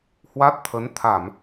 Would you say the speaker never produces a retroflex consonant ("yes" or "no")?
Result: yes